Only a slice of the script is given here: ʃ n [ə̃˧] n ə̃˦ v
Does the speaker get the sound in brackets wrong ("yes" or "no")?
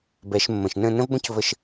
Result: yes